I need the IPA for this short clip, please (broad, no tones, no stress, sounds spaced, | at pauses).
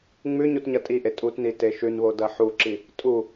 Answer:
ŋ͡m ʉ ɲ u t ɲ ɐ tʼ i ʔ e tʼ u t n i t e ʃ ʉ n β o d ɐ ħ u ǁ i | tʼ u